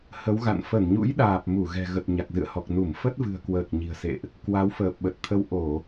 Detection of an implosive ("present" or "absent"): present